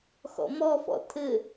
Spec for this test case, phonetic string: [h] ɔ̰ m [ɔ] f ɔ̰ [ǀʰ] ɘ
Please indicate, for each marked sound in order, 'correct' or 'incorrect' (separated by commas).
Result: incorrect, correct, incorrect